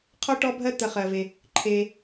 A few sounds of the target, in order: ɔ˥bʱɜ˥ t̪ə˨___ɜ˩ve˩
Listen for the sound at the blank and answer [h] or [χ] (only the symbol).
χ